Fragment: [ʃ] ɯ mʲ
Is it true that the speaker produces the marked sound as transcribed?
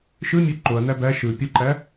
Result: yes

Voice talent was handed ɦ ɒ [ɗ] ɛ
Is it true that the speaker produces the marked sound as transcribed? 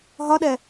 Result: yes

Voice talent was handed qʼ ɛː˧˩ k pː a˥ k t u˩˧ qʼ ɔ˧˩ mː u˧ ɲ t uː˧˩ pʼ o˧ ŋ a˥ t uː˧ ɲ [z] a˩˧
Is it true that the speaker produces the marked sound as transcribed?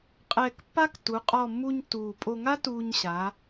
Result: no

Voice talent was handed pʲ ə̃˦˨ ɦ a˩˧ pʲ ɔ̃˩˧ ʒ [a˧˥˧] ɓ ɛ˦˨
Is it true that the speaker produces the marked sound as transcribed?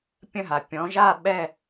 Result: no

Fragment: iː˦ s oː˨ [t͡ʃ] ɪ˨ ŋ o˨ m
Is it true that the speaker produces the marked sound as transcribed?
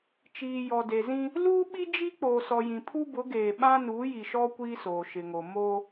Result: no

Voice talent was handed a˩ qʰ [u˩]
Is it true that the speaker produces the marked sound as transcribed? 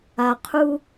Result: no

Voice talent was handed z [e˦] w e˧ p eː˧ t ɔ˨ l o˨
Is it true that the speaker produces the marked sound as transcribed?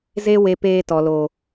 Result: yes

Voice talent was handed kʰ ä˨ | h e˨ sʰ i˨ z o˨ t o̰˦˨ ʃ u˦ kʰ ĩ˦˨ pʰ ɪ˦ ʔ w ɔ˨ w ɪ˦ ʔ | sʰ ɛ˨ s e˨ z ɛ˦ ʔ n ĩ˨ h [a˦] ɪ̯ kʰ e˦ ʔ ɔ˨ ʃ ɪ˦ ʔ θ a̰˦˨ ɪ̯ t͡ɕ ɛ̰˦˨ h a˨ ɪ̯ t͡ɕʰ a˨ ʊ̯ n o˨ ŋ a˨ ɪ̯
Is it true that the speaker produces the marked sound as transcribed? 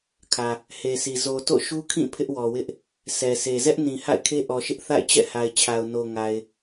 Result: no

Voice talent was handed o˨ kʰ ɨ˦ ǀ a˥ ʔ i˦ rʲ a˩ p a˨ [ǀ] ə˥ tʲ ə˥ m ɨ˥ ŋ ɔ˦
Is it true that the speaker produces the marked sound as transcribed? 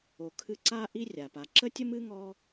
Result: no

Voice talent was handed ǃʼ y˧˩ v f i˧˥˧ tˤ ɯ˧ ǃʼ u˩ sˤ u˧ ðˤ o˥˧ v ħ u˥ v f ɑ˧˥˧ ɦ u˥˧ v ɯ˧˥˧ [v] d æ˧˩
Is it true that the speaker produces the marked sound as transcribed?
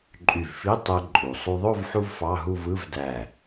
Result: yes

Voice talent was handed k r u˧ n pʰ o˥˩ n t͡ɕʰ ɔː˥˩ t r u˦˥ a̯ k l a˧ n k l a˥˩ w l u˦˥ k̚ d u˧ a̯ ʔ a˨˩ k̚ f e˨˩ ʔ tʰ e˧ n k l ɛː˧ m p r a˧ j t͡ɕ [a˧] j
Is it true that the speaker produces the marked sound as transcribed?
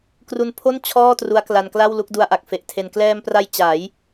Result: no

